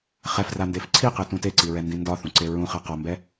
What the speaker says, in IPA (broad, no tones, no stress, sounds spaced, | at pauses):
χ ɛ f r a n d e f ǀʰ i q ɛ t ũ t e ǀ i ɹ ɛ n d ĩ n d ɒ θ ũ ǀ e ɹ ũ χ æ q ɒ m b ɛ